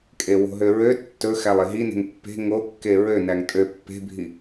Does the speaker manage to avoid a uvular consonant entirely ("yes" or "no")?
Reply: yes